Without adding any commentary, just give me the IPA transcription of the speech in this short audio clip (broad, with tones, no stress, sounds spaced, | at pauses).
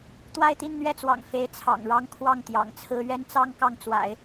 t̪ w a˥˧ ɪ̯ t̪ i˥˧ n n̪ ɥ ɛ˥˩ t͡s w ɑ̰˨˩ ŋ f e˧˥ ɪ̯ t͡sʰ ɑ̰˨˩ ŋ ɻ ɑ˥ ŋ kʰ w ɑ˥˩ ŋ t̪ j ɑ̰˨˩ ŋ t͡sʰ ɹ̩˥ ɥ ɛ˥ n t͡s ɑ˥ ŋ k ɑ˥˩ ŋ t͡s w a̰˨˩˦ ɪ̯